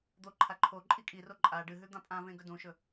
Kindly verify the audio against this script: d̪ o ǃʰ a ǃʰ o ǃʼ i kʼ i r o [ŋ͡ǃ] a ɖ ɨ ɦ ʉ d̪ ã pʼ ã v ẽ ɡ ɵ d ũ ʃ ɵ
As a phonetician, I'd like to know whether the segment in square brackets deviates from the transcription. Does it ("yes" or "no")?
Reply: yes